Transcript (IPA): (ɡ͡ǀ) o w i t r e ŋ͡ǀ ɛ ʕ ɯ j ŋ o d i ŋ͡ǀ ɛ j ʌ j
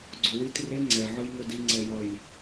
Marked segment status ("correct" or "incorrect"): correct